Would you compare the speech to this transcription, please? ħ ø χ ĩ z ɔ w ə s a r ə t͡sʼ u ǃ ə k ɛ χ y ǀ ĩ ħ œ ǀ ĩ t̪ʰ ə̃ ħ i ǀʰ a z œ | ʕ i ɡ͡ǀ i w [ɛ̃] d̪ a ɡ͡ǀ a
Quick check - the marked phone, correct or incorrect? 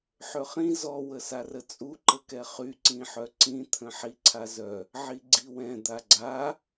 correct